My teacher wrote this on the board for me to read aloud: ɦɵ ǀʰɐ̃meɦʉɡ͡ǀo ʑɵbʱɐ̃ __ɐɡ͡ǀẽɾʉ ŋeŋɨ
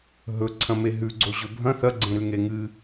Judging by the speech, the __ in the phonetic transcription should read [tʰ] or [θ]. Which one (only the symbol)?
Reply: θ